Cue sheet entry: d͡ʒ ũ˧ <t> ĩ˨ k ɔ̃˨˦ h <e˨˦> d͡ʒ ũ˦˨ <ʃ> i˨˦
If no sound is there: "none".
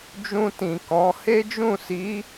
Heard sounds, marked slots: t, e˦, s

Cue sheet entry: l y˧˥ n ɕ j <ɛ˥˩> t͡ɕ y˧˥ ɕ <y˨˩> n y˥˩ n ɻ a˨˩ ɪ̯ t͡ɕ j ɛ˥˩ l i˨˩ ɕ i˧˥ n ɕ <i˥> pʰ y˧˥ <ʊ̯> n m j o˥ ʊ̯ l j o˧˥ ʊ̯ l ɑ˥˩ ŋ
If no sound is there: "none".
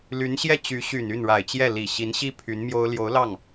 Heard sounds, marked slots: ɛ˥˩, y˨˩, i˥, none

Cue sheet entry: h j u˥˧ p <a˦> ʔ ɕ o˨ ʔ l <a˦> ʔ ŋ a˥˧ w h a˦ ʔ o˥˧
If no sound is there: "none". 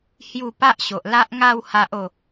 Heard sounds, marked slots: a˦, a˦

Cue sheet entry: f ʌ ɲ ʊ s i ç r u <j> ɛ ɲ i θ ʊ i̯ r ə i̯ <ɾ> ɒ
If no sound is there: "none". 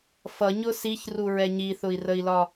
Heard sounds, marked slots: ɹ, l

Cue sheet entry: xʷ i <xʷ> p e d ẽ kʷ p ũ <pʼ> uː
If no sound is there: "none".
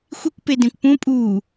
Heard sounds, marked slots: kʷ, pʼ

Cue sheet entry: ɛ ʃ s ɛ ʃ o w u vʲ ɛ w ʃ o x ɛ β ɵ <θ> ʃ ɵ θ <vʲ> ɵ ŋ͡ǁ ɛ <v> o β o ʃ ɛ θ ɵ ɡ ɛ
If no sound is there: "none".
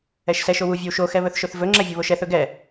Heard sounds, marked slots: θ, v, vʲ

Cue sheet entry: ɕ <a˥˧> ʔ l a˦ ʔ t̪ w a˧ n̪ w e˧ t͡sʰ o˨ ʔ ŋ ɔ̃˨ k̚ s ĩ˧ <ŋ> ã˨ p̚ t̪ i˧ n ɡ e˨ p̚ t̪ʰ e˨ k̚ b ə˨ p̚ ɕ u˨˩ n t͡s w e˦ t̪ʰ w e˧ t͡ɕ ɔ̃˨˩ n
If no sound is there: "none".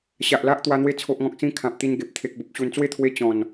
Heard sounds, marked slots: a˨, kʰ

